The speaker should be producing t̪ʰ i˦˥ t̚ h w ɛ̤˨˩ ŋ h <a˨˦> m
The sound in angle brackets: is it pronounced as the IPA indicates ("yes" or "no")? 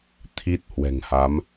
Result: yes